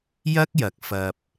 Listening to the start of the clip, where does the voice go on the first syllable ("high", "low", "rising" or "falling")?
high